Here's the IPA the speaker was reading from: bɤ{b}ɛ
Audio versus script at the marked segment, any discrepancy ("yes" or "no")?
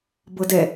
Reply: yes